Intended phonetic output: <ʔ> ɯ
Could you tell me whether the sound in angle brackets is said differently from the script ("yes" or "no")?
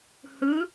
yes